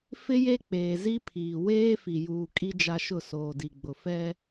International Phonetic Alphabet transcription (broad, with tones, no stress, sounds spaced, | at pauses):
f ɪ˦ j e˦ k͡p eː˨ z i˦ pʰ iː˨ w eː˦ f i˨ j uː˨ kʼ i˦ d͡ʒ a˦ ʃ ʊ˦˨ s oː˨ d i˨ ɡ͡b ʊ˨ f ɛ˦